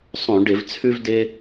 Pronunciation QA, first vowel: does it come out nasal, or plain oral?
nasal